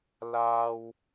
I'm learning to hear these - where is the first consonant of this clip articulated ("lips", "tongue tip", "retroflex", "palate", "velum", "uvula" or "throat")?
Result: tongue tip